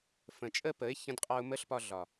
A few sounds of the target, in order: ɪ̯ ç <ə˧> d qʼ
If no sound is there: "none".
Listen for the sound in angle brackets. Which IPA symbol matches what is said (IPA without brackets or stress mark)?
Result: ə̃˧